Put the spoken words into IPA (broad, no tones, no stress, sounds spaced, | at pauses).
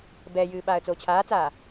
b ɛ j ɨː ɓ aː ə̯ t͡s oː t͡ɕʰ aː t͡s aː